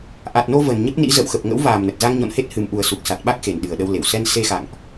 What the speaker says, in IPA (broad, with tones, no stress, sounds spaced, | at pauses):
ʔ a˨˩ t̚ n o˧ v ə˨˩ n ɲ ə˦˥ p̚ n ḭ˧˥ z ə̰˧˨ w x ə˨˩ p̚ ŋ ə̰˧˥ w v aː˨˩ m n ə˨˩ t̚ z a˧ ŋ ɲ ɔ̰˧˨ n h e˦˥ t̚ h ɨ˨˩ m ʔ u˨˩ ə̯ s u˨˩ k̚ s a˨˩ t̚ ɓ a˦˥ k̚ x e˨˩ n ɗ ɨ˨˩ ə̯ ɗ ə˧ w l e˧˩ w s ɛ˧ n s e˧ x a̰˧˨ ŋ ʔ